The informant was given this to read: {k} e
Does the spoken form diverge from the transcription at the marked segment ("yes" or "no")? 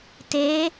yes